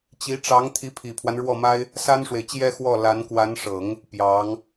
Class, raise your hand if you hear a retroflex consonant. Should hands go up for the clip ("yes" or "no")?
yes